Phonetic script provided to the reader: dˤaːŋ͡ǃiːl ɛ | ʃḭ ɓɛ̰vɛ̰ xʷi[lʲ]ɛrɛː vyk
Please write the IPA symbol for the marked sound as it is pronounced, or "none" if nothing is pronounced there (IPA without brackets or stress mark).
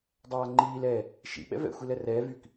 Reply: l